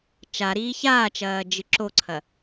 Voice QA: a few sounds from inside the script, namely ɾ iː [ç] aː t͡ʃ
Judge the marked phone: correct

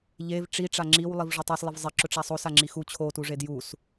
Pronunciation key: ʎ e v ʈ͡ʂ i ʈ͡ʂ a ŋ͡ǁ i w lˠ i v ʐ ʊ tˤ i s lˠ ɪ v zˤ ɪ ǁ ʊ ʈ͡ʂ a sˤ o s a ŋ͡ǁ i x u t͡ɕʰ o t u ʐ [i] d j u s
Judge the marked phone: incorrect: e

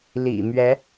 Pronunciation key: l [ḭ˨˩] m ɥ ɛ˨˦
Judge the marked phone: correct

